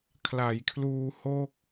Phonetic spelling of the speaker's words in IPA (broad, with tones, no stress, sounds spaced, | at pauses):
kʰ l a˩˦ j kʰ l uː˧ h o˥˩ k̚